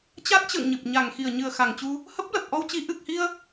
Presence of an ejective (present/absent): absent